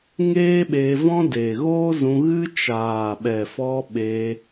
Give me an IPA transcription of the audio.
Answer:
ŋeː˦ɓeː˧vɔ̃˦ de˨ɣoː˦zũ˧ɣɨ˦ t͡ʃaː˨ɓɛ˨fɔ˧ ɓeː˧

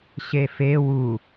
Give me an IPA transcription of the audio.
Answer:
ɕefe wu

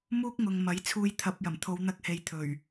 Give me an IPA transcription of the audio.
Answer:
muː˥k̚ŋʊ˨ŋmɐ˨˥jt͡sʰuː˧j t̪ʰɐ˨p̚jɐ˨˩m t̪ʰo˨˧wn̪ɐ˧k̚he˨j t̪ʰɵ˨˩ɥ

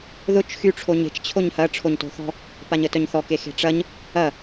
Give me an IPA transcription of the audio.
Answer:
ðʊt͡ʃ xy ʈ͡ʂʰoɲe̤t͡ʃ t͡ɕʰoɲhɐ ʈ͡ʂʰoɲto̤θɔ̤ | paɲətœɲθɔ kexe̤ʈ͡ʂɐɲ | ɐ

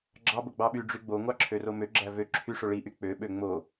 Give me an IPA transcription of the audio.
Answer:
ɡ͡ǁɑ boɡ͡bɑɓy ɖ͡ʐyɡ͡bo ŋʷɑǁʰøromø ɡ͡ǁævø ǁʰyʂo ɭiʔy k͡pø ɓøŋ͡mo

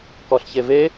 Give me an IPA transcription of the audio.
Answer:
kɔɬçeve

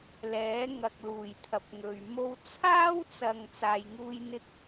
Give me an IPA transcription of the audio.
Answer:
lɛː˨˥ ŋɐ˧k̚luː˨˩j t̪ʰɐ˨p̚ŋɵ˨ɥmo˥w t͡sʰaː˥wt͡sɐ˨ŋ t͡saː˧jŋuː˥jn̪ɪ˥k̚

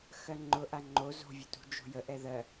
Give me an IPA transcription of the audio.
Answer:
xɜŋ͡ǃʊʔa ŋ͡ǃo zo̤vʲə tṳd͡ʒo̤jə ʔɛðɜ

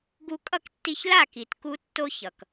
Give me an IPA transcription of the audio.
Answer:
ɡu˧kʼʌ˦˨ktːi˧çla˦˨ ki˨tku˧tːo˧ çʌ˨k

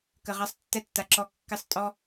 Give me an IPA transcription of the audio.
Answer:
kə˨ʁa˧sˤtːɛ˧tːa˨ ǁɔ˧kːɪ˦˨sˤ tʼɔ˦

